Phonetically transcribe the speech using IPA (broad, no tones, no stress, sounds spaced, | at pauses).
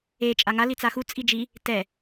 e t͡ʃʼ a ŋ a l i t͡s a x u t͡sʼ i d͡ʒ i | t ɛ